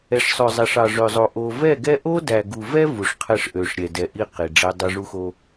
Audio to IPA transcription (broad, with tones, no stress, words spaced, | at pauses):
ɛ˨ʂsˤø˨zˤæ˨ʂɑ˨ ʐø˨zˤo˨ ʔo˨vɛ˦˨ɡɛ˦ ʔo˦dæ˨ɡu˨vɛ˦ vu˨ʂ qʰɛ˦ʂʔø˨ʂ ɾʲɛ˨dɛ˨ʔi˦ qi˨ɖ͡ʐæ˦ dˤø˦ʐu˦xo˦